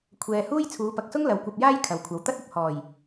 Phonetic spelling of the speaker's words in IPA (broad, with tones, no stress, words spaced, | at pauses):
kʷʰɛː˨huː˥j t͡sʰuː˨˧pɐ˨k̚sʊ˥ŋ lɐ˨wkʷɐ˧p̚jaː˥j kʰɐ˨wkʷʰɐ˨˧wt̪ɐ˥t̚ɐ˨p̚ hɔː˨˩j